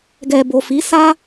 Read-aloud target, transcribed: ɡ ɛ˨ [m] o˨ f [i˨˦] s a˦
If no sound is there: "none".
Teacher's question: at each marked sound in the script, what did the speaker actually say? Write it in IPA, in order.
b, i˨˦

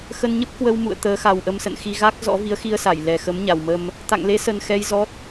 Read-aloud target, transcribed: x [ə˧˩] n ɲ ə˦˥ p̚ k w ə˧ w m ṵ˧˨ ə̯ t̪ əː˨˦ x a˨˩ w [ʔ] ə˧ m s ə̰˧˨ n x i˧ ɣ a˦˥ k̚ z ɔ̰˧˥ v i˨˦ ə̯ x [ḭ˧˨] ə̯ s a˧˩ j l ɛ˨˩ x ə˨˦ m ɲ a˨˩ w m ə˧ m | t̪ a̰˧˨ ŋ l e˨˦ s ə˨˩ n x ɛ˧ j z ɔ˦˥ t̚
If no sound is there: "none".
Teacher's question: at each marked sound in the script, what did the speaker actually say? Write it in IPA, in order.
ə˧, ʔ, i˧

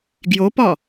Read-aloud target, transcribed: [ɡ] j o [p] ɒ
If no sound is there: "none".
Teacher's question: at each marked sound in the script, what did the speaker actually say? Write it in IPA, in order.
ɡ, p

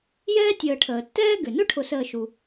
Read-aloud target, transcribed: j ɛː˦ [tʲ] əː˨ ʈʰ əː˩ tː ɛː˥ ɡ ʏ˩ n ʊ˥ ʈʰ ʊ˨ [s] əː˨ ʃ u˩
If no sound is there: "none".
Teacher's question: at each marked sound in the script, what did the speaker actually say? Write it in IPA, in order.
tʲ, s

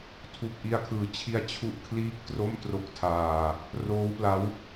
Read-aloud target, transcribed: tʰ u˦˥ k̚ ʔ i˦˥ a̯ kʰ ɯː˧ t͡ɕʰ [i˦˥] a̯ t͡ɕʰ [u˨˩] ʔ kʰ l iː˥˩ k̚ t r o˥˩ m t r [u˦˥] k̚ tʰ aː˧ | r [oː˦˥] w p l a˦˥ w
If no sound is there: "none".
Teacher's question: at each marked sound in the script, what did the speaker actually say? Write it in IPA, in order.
i˦˥, u˦˥, o˦˥, oː˦˥

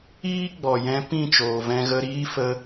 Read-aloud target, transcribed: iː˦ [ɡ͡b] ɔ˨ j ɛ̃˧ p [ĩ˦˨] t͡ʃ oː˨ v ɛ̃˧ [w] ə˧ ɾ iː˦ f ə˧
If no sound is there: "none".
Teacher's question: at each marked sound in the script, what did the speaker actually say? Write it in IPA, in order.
ɡ͡b, ĩ˦˨, ɣ

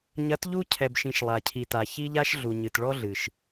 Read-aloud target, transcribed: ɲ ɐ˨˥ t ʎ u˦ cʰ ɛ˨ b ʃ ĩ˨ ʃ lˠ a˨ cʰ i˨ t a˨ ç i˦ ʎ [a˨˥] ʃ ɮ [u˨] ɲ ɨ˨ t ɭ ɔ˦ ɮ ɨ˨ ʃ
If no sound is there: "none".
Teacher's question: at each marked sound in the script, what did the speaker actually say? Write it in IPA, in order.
a˦, u˨

